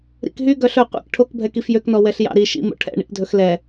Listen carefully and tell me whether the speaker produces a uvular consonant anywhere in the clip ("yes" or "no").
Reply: yes